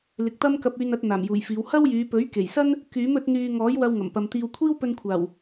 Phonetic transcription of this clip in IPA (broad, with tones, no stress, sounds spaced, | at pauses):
l ɪ˨ k̚ t̪ ɐ˥ m k ɐ˧ p̚ yː˧ n ɐ˨˥ t̚ n̪ aː˨˩ m j uː˨˩ j f iː˨˧ w h ɐ˥ w j yː˨˧ p ɵ˨˥ ɥ k e˨˩ j s ɐ˥ n | k yː˨˥ m ɵ˨˥ t̚ n̪ yː˧ ŋ ɔː˨˥ j w ɐ˧ w ŋ ɐ˨˩ m p ɐ˨ m t̪ iː˧ w kʷʰ iː˥ w p ɵ˧ n kʷʰ aː˨˩ w